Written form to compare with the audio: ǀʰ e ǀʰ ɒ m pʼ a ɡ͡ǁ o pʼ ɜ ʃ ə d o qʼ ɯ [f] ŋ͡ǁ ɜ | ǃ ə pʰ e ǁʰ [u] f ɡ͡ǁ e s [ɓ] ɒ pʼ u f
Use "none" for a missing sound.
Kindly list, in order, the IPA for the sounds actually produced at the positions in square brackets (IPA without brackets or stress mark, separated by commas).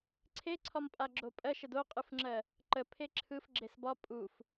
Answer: f, ɯ, b